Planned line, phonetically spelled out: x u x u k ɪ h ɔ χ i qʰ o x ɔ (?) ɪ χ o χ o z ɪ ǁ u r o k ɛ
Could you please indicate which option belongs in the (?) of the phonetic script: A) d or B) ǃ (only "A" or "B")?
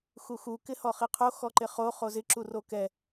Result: B